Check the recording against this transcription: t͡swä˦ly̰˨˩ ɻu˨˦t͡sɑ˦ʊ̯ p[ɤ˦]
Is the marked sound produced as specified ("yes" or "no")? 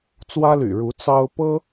yes